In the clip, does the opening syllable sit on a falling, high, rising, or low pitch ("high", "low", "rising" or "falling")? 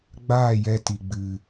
falling